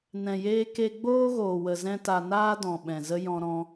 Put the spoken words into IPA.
nɛ̃˨jeː˧ ke˧ɡ͡boː˦ɣoː˨wə˨ zɛ̃˦ta˧ naː˦dɔ̃˨ ɓɛ̃˨zə˦ jɔ̃˧ɾɔ̃˧

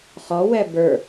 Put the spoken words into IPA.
χɔwɛ bə˞

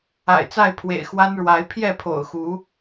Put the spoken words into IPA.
a̰˨˩ɪ̯t͡sa˥˨ɪ̯pʰwḛ˨˩ɪ̯ xwa˦nɻwa˨˦ɪ̯ pʰjɛ˥˨pʰo̰˨˩ʊ̯xu˨˦

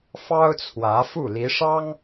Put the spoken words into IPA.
fɑ˥ʊ̯t͡sʰwä˧˥fu˥˩ li˧˥ʂɑ˥ŋ

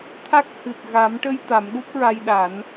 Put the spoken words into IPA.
t̪ʰa˦˥k̚hɨ˨˩t̚ ɣa˨˩˦mʈə˧j t̪a˨˩˦mɗu˦˥p̚ɹa˧jɗa˨˩˦n

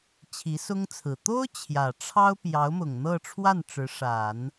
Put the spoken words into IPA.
t͡ɕʰi˧˥sʊ˥ŋt͡sʰɹ̩˨˩ t̪o˥ʊ̯ t͡ɕʰjä˨˩ʈ͡ʂʰɑ˥ʊ̯ pjɑ˧˥ʊ̯mʊ˨˩ŋn̪ɤ˥˧ʈ͡ʂʰwa˥˩n ʈ͡ʂɻ̩˧˥ʂa˨˩˦n

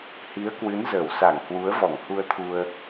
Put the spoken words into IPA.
hi˨˦ə̯kwɨ˨˦nzəː˧˩wsa˧˩ŋ hwu˨˦ə̯vɔ˧˩ŋhu˧ə̯t̪ʰu˧ə̯

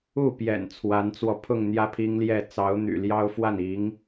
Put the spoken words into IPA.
u˥˩pjɛ̰˨˩n t͡sʰwa˧˥nt͡swɔ˧pʰʊ˥˧ŋ n̪jä˥˩pʰi˥ŋljɛ˥˩ t͡sɑ˧˥ʊ̯n̪y̰˨˩ljɑ˥ʊ̯fwa˥˩n i˧˥ŋ

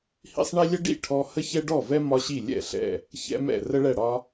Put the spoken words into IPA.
hḭ˥sˤɳi˥ lʲə˥ɖḭ˥˩ ʈʰɔ˥ hə˥çɛ˥ɖɔ˥˩vɛ˥ mɒ˥ɕi˥˩ lʲɛ̰˥˩ɬɛ̰˥˩ | çɛ̰˥mɛ̰˥˩ rə˥ɭɛ˥˩ɽɒ˥

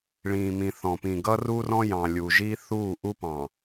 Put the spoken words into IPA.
ɭĩː˨mĩ˨θɔ̃˨pĩ˨ ɡʌ˦ru˦rɔ̃˦jɑ̃˨ lʲu˨ ʒi˦θuː˦˨ʔu˦pɑ̃˨

